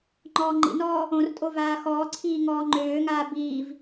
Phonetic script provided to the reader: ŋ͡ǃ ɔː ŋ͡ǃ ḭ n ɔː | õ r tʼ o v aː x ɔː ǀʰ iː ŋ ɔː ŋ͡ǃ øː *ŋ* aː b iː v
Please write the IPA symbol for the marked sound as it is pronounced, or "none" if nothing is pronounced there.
ŋ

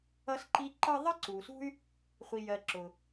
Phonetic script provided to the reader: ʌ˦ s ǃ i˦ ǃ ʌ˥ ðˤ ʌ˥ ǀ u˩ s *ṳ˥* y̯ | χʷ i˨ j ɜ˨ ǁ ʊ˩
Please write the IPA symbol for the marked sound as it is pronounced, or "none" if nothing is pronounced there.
ṳ˥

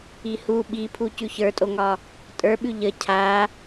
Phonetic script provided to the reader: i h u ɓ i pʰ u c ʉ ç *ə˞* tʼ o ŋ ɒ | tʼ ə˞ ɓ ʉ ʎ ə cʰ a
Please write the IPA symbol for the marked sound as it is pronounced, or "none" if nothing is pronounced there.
ə˞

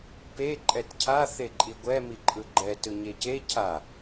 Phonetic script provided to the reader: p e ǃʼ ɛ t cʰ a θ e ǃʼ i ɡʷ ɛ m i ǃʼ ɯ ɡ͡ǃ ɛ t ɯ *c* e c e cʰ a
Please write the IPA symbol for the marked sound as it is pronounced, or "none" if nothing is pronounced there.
ɲ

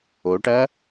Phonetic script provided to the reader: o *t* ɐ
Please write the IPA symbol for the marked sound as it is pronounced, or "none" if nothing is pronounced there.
ʈ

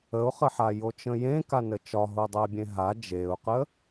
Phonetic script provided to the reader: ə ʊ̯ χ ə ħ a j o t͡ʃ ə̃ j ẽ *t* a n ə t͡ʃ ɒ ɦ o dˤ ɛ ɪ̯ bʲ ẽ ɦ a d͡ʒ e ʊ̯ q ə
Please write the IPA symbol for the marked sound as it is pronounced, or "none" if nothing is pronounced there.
k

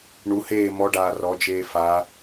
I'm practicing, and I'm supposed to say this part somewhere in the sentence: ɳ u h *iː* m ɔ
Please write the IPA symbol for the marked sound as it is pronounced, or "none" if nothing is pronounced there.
eː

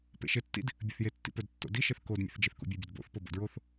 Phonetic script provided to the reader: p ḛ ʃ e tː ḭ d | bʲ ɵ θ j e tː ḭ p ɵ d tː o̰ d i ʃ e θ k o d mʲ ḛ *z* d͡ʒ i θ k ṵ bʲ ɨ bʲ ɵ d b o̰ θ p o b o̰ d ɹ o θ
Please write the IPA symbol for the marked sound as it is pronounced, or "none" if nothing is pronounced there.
θ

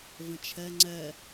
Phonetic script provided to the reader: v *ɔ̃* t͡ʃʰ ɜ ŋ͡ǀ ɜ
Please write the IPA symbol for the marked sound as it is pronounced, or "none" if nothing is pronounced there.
ə̃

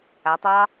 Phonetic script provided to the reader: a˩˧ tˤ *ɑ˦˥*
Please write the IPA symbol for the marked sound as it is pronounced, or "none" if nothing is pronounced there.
ɑ˦˥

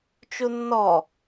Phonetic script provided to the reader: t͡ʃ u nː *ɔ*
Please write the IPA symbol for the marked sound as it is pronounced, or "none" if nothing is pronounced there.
ɔ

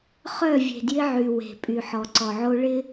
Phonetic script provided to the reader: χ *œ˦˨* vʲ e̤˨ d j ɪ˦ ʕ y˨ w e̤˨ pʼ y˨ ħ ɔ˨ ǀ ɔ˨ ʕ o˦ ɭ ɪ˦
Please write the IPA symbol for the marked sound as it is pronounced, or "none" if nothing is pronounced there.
œ˦˨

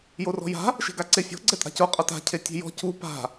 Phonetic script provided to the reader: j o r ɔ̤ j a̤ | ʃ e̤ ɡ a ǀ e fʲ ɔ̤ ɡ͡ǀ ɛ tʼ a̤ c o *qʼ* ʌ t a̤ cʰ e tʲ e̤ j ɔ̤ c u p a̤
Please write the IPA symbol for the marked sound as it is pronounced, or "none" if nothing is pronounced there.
qʼ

